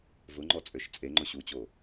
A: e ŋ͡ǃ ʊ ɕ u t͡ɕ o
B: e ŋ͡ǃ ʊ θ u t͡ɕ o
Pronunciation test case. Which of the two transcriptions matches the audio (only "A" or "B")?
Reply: A